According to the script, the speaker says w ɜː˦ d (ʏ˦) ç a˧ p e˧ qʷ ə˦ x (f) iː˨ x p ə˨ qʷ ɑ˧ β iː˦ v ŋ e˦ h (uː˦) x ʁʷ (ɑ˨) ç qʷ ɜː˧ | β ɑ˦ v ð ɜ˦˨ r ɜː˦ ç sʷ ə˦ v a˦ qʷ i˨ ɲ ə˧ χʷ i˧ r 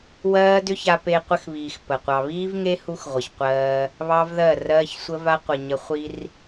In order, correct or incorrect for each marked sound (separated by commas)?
correct, incorrect, incorrect, incorrect